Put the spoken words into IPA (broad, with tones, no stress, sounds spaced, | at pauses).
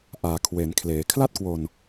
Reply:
ʔ aː˩˦ kʰ w e˩˦ n kʰ l eː˩˦ kʰ l a˥˩ t̚ k w o˧ n